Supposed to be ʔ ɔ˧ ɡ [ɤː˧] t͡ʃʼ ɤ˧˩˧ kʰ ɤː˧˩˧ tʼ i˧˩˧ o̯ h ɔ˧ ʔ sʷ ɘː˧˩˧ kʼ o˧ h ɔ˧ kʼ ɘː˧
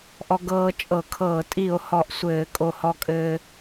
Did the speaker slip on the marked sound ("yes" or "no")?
no